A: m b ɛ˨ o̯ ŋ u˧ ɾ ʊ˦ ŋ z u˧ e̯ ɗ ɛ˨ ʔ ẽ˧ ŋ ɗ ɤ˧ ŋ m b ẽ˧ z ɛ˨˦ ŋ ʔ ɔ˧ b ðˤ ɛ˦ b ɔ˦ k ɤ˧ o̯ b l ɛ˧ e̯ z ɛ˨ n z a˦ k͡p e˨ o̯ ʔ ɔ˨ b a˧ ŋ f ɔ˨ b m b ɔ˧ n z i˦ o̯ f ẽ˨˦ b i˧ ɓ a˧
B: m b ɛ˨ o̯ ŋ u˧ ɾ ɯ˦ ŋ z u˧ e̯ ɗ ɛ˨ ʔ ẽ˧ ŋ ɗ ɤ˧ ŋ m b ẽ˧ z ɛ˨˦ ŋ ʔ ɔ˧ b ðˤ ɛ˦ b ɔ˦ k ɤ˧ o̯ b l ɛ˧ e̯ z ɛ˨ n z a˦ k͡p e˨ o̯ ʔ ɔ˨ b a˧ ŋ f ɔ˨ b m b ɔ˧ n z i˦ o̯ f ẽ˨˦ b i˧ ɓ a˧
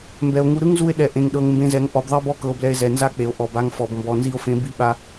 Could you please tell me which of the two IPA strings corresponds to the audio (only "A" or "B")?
B